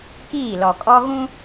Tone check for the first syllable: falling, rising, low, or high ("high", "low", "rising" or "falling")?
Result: falling